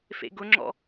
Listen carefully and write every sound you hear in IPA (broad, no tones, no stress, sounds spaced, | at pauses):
f ḛ ɡ ʊ ŋ͡ǁ ɔ̰